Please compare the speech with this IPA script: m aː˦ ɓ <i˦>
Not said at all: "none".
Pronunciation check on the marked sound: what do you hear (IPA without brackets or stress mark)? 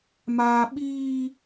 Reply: iː˦